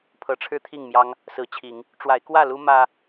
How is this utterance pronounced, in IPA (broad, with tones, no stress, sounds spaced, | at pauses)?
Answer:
pʰ ɤ˨˦ ʈ͡ʂʰ ɻ̩˦ t̪ʰ i˥˨ ŋ m j ɑ˦ ŋ | s ɹ̩˨˦ t͡ɕʰ i˨˦ ŋ | ʈ͡ʂ w a˨˦ ɪ̯ k w ä˥˨ l u˦ m ä˦